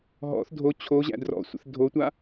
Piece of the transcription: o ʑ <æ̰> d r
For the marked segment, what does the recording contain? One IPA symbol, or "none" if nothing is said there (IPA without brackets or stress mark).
æ̰